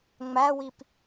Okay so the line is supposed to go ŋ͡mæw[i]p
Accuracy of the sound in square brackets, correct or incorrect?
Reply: correct